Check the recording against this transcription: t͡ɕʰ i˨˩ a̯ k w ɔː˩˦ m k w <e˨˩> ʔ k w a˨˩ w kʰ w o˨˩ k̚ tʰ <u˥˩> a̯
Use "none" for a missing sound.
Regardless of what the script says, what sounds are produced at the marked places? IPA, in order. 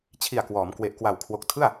e˨˩, ɯ˥˩

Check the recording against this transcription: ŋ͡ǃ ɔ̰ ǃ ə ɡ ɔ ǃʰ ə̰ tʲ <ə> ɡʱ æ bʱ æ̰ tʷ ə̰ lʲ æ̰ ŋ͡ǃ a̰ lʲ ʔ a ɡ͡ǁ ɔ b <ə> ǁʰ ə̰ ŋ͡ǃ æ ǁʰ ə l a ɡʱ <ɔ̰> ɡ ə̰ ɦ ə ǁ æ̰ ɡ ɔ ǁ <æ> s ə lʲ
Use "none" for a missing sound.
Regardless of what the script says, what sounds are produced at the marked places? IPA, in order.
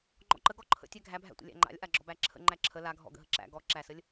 æ, æ, ɔ̰, æ

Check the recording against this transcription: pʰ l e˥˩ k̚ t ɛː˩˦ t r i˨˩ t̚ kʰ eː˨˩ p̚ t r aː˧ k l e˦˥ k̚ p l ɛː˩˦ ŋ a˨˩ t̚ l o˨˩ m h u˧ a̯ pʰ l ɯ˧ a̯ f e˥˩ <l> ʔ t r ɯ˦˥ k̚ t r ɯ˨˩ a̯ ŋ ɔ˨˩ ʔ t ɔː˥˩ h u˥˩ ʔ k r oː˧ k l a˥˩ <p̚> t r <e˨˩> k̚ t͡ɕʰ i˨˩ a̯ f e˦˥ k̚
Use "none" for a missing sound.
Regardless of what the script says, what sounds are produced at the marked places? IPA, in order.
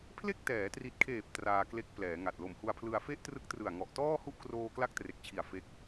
none, k̚, e˨˩

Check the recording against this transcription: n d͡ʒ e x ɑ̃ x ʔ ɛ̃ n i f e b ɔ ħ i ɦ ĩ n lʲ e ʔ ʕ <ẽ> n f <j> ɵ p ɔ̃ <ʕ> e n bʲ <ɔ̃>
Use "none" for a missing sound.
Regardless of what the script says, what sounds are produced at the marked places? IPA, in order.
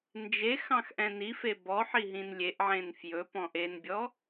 ẽ, j, ʔ, ɔ

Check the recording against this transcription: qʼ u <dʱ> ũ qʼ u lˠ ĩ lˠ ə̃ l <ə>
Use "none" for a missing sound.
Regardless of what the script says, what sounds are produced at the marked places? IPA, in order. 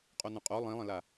n̪, a

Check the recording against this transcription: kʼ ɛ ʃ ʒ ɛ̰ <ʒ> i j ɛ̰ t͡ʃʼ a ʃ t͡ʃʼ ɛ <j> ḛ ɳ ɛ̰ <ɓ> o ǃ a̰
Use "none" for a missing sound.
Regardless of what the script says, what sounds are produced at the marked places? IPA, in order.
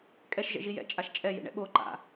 ʒ, j, ɓ

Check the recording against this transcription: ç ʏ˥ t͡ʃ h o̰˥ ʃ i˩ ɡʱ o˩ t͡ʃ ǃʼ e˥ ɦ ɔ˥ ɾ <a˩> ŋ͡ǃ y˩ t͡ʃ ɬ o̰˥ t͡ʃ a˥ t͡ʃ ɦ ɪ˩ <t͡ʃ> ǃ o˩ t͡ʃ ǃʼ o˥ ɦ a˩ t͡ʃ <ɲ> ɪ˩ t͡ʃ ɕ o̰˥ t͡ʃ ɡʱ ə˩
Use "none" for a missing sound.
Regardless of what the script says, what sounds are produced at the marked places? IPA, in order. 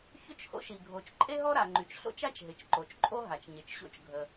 a˩, t͡ʃ, ɲ

